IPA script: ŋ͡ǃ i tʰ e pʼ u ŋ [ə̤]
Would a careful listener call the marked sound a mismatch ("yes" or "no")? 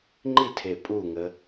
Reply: yes